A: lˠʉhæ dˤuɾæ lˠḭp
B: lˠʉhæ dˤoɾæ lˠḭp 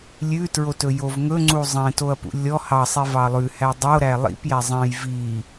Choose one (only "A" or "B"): B